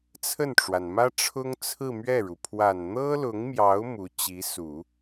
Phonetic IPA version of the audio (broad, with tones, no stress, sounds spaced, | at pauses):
t͡sʰ ə˥˩ n ʈ͡ʂ w a˩ n m ä˥ ʈ͡ʂʰ ʊ˥ ŋ t͡sʰ ɹ̩˥˧ m ɥ ɛ˥˩ ɻ u˩ pʰ w a˨˩ n n̪ ɤ˥ l ʊ˧˥ ŋ m j ɑ˧˥ ʊ̯ m u˧˥ t͡ɕ i˧˥ s u˨˩˦